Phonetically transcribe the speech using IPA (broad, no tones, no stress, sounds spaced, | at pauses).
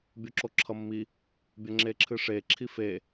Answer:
bʲ o ǁ o ǁʰ ʌ mː i | bʲ ʌ ŋ͡ǁ e ǁʰ ɨ ʂ e ǁʰ i f e